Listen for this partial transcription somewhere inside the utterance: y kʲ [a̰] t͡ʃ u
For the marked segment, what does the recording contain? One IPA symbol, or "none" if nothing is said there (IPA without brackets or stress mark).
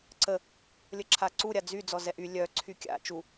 a̰